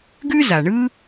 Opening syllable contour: high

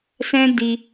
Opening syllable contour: high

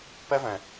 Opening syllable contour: high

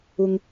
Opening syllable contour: low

